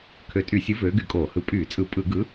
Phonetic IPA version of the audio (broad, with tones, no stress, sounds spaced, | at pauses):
kʰ ø˨˥ tʼ y˧˩˧ sʲ ɯ˨˥ v øː˨˥ ɡ y˧˩˧ kʼ oː˧˩˧ h ɯ˧˩˧ pʼ yː˧˩˧ t͡sʼ ɯ˧˩˧ pʼ ɯ˧˩˧ ɡ ɯ˨˥